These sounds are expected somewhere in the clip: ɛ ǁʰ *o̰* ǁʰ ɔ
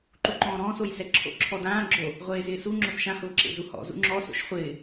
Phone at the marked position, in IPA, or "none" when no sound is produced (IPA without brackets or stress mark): o̰